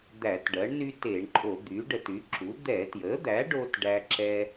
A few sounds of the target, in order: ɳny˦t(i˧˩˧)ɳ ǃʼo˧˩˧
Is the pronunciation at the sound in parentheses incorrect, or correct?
incorrect